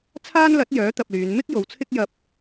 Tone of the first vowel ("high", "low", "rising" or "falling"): high